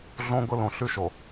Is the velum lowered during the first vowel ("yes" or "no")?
yes